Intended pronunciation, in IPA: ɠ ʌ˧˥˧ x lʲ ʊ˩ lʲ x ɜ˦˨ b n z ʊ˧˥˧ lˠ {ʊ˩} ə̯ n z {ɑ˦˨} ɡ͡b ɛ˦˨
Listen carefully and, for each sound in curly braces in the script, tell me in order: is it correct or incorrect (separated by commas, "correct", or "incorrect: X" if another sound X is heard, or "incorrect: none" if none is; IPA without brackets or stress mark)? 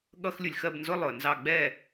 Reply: correct, correct